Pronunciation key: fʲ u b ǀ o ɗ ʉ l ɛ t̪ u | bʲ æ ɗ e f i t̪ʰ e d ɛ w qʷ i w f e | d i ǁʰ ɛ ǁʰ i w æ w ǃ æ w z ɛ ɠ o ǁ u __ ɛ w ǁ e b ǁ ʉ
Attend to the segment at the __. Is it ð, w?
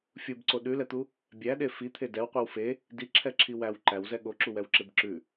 w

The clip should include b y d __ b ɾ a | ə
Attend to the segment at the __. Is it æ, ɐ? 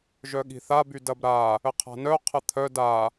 ɐ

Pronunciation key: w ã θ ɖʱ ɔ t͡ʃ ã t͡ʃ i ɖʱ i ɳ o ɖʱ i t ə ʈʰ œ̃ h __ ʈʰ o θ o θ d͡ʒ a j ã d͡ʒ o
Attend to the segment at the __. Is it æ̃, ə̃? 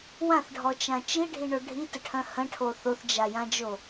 ə̃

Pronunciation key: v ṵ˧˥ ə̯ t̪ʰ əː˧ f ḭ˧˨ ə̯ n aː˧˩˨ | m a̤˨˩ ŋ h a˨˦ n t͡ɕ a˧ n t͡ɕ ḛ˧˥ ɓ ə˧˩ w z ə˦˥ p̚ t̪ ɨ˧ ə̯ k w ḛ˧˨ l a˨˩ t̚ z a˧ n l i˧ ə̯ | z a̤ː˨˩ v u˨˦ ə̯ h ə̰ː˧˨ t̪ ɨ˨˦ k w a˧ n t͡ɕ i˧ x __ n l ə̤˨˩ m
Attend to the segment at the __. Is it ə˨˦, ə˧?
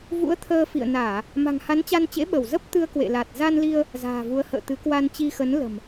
ə˨˦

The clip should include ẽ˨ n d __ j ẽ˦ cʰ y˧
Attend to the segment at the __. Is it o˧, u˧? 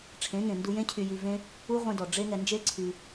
u˧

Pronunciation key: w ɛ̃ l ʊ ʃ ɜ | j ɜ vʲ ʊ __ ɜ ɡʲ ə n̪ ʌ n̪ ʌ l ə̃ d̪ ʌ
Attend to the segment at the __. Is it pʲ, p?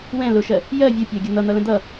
pʲ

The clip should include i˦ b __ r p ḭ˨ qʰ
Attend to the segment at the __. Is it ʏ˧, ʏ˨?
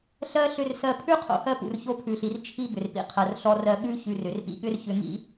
ʏ˨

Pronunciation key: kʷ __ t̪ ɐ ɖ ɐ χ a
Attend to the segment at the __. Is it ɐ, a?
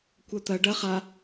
ɐ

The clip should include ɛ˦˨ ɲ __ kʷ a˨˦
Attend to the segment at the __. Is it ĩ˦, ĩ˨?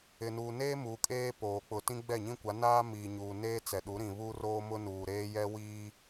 ĩ˦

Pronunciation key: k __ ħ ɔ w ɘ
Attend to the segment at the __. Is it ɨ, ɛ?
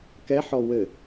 ɛ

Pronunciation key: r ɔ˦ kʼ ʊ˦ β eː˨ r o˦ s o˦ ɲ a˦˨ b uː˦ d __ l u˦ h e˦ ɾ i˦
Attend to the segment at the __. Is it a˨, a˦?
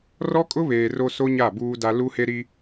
a˦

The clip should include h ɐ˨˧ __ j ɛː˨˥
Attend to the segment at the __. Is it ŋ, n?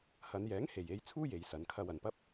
n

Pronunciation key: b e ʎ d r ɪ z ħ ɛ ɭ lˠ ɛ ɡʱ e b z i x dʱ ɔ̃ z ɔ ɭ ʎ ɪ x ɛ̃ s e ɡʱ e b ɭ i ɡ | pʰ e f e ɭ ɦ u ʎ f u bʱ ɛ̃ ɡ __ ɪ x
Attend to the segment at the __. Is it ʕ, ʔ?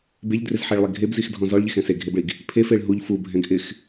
ʔ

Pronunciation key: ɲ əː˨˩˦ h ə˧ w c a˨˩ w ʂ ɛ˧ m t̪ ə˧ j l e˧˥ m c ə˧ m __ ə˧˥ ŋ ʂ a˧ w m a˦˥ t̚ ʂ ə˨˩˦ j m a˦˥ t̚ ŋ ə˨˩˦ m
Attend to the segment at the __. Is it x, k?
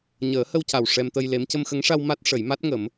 x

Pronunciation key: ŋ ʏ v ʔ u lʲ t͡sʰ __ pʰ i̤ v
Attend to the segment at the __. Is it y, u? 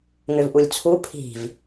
u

